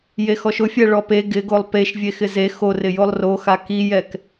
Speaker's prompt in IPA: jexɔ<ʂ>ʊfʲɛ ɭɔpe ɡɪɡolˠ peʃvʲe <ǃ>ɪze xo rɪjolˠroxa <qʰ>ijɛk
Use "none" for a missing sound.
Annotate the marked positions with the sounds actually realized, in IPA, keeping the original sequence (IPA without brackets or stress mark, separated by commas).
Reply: ʃ, x, k